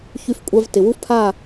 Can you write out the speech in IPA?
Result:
ç y˧ f kʷʼ a˧ v t ɪ˨ w u˦ f pʰ a˦˨

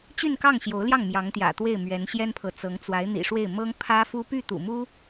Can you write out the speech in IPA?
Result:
t͡ɕ y˥˧ n k ɑ˥˩ ŋ ɕ j o˧˥ ʊ̯ l j ɑ˥˩ ŋ m j ɑ˧˥ ŋ t̪ j ä̰˨˩ t̪ w e˥˩ ɪ̯ m ɥ ɛ˧˥ n ɕ j ɛ˥ n pʰ ɤ˨ t͡s ɤ˧˥ ŋ t͡s w a˧˥ ɪ̯ n̪ ḭ˨˩ ʂ w e˥˩ ɪ̯ m ɤ˥ ŋ pʰ ä˥ f u˥ p y˥˩ t̪ ṵ˨˩ m u˥

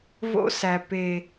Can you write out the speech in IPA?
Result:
v o̰˦ s æ˨ p e˨

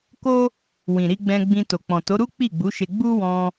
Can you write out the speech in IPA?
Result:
k o˦ | w ĩ˨ ɾ i˧ ɡ͡b ɛ̃˧ ɡ͡b ĩ˧ t o˨ k͡p ɔ̃˨ t o˨˦ ɾ u˦ k͡p i˦˨ ɡ͡b u˨˦ ʃ e˧ ɡ͡b u˦ w ɔ̃˧

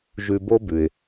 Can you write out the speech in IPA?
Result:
ʒ ʉ˧ b o˥ b ʉ˩ ɪ̯

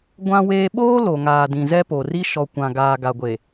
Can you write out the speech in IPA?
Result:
ɡʷ ã˦ w eː˦ ɓ oː˦ l o˨ ŋ aː˨ d ĩ˨ z ɛ˦ p o˨ r i˦ ʃ ɔ˨ kʷ ã˨ ɡ aː˨ ɡ a˨ ɡʷ e˨

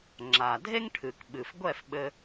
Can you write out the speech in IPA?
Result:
ŋ͡ǁ a˩ dʱ e˥ ŋ ʈʰ ɨ˩ k ɓ ɨ˩ f ɡʷ ɛ˥˩ f ɓ ɘ˧

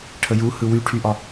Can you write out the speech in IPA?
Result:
ʈʰ ə j u h ɯ w y ʈʰ y ʔ ɒ

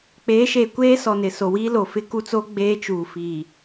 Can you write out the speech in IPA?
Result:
k͡p eː˨˦ ʃ eː˨ kʷ eː˦ s ɔ˨ n ɪ˨ s o˨ w iː˦ l o˨ f ɪ˦ k u˦ t͡s o˦ ɡ͡b eː˦ t͡ʃ uː˨ f iː˨

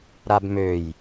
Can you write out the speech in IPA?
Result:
ɾ a b m ø j

